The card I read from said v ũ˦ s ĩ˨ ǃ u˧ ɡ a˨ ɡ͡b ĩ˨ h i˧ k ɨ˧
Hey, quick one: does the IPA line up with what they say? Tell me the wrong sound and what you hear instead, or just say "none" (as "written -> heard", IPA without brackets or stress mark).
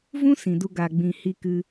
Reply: ǃ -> d